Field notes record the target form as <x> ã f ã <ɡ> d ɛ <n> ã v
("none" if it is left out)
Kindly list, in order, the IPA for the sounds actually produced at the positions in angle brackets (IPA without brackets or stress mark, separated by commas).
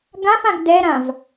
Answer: ɡ, ɡ, ɾ